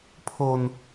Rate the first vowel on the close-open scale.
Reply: mid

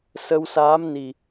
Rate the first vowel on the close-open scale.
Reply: mid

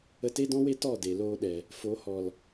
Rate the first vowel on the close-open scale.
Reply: mid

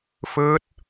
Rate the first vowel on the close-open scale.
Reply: close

